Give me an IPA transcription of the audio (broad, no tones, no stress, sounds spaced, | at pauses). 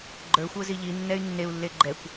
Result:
ɡ͡ǃ ə˞ xʷ ə˞ z i ʎ i nː ɛ y̯ nː e u̯ lː e ɡ͡ǃ ɛ kʷ